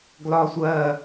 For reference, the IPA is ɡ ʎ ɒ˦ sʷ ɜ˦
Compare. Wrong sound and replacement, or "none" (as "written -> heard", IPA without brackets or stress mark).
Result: ʎ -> l